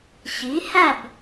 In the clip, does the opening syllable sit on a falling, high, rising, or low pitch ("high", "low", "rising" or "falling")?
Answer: rising